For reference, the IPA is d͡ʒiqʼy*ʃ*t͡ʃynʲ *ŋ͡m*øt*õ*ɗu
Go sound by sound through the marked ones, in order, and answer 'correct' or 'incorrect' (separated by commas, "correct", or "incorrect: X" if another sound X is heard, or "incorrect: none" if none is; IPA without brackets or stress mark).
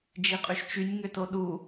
correct, incorrect: ŋ, incorrect: o